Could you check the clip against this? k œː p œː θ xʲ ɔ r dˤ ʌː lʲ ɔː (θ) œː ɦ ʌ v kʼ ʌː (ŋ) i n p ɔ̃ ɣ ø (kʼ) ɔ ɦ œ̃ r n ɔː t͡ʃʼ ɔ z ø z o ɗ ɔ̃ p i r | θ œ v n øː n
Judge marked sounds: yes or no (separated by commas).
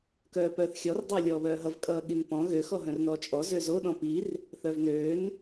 no, no, no